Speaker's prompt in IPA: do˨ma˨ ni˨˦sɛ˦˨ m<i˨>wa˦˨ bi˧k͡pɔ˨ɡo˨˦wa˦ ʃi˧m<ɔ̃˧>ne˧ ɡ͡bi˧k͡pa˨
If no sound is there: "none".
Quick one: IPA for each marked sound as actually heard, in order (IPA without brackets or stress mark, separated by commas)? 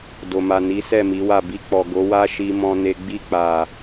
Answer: i˨˦, ɔ̃˧